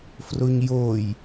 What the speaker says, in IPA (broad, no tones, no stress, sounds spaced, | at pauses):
f r o ɲ j o j